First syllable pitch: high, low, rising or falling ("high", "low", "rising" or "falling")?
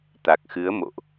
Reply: low